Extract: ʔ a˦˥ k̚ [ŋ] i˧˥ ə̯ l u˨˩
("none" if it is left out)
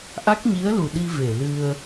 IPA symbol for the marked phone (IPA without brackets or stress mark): ɲ